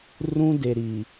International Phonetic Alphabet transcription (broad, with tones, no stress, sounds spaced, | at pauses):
r ũ˦ d e˨ ɾ i˨